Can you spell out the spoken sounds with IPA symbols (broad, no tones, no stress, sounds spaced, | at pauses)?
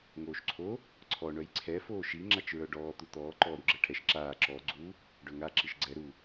ŋ oː ʃ ǀʰ o | ǀʰ ɔ ɳ œ j ǀʰ ɛ f oː ʃ i ŋ͡ǁ a t͡ʃ ɹ œ ɖ ɔː t̪ u t̪ ɔː ǃ ɔː ɾ u ɡ͡ǁ ɛ ʈʰ ɛ ʃ ǁ aː ǁ ɔ ɡ͡ǀ u | ɖ œ ŋ a ǁ i ʃ ɡ͡ǀ ɛ ɾ u